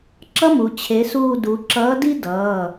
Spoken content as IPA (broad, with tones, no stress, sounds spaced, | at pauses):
ǁ ʌ˥ m u˩˧ t͡ɕʰ e˨˥ s uː˦˨ d u˩˧ ǁ ʌː˨˥ d i˥ d ʌː˩˧˩